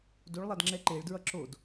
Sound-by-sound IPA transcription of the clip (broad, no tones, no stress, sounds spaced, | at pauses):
d o ɭ lˠ a d ŋ͡ǁ ɛ ǃ e ɭ d ɹ ʌ ǁ o d